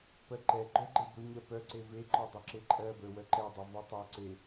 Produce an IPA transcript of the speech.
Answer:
pɜǃɛɡ͡ǃœ ɡ͡ǃebɵɲɜ pœǀe veǃɔ dˤɵǁeǃʼɜbə˞ wœǃɛdˤɵ vɔtˤɜǀe

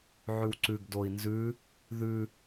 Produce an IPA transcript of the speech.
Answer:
ʕʉwǀʉɡdoi̯ nzʉ | ðʉ

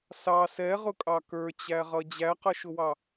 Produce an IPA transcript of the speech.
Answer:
sɑ sɛʁʊkʼɑ kə˞t͡ɕæʁʌ d͡ʑæqʌʃʊwɑ

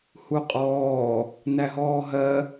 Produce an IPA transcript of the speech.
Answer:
huqʼɔː | næɦɔːɦɜ

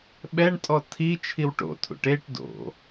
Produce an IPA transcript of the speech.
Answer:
ɓɛɳtʼɔ tʰi t͡ʃʰiwʈo̰tʰṵʈ eʈ do̰

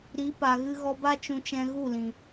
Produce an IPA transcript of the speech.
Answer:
ɾi˨˦pa˨ɣɨ˧ ɣɔ˧ba˦t͡ʃũ˧t͡ʃɛ̃˧ ɣu˦˨lĩ˨

